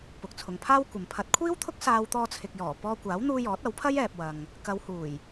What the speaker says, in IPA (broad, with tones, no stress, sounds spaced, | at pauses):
p ʊ˨ k̚ t͡sʰ ʊ˨ ŋ pʰ aː˥ w kʷ ɐ˨ m pʰ ɐ˨˥ t̚ kʷʰ iː˥ w t̪ʰ ʊ˥ k̚ s aː˧ w t̪ ɔː˧ t͡sʰ ɪ˨ k̚ j ɔː˨˩ p ɔː˧ kʷ aː˨˥ w n̪ uː˧ j ɔː˨˥ t̚ ɐ˨˥ w pʰ ɐ˥ j ɛː˨ p̚ w ɐ˨ ŋ | k ɐ˨˧ w h uː˨˩ j